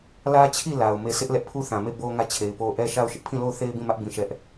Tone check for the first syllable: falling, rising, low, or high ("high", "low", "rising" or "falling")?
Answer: high